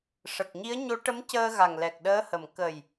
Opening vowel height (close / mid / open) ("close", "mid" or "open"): mid